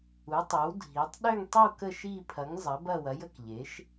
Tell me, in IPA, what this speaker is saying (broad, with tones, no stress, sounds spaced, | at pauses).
u˩˥ tˤ e˩˥ w dʱ i˩˥ tˤ ɗ ø˦˨ ŋ tˤ i˦˨ w k ə˦˨ ʃ i˦˨ pʰ ɐ˩˥ ŋ zˤ ɐ˩˥ b ɐ˦˨ w ɐ˩˥ j ə˦˨ k ʎ e˩˥ ʃ